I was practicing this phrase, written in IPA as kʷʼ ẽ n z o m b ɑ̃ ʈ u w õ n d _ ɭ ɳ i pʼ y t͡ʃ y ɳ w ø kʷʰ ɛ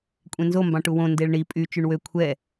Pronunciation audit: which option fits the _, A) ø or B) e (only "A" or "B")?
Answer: B